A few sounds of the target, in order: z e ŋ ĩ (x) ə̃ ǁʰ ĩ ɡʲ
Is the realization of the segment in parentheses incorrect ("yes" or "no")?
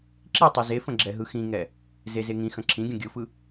no